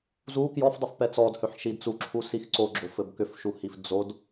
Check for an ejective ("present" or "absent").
absent